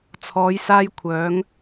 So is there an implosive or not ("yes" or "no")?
no